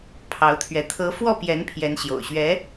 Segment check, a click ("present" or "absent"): absent